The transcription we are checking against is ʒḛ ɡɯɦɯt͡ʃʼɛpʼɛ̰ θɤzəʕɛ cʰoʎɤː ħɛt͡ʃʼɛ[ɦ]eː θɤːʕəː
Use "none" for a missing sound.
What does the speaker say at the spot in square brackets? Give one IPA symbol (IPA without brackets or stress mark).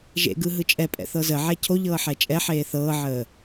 ħ